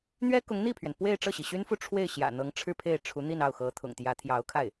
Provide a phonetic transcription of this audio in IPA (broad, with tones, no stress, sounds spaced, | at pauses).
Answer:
n̪ ɥ ɛ˥ k ʊ˧˥ ŋ n̪ i˥˩ pʰ ɥ ɛ˩ n p w e˥˧ ɪ̯ ʈ͡ʂ ɤ˥˩ ɕ i˩ ɕ y˥ n f u˥˧ ʈ͡ʂʰ w e˥˩ ɪ̯ ɕ j ä̰˨˩ n̪ ɤ˧˥ ŋ ʈ͡ʂʰ ɻ̩˥˧ pʰ e˥˩ ɪ̯ ʈ͡ʂʰ u˧˥ n̪ i˥˧ n ɑ˥˩ ʊ̯ x ɤ˧˥ t̪ʰ ʊ̰˨˩ ŋ t̪ j ä˧˥ t̪ʰ j ɑ˧˥ ʊ̯ kʰ a˥˩ ɪ̯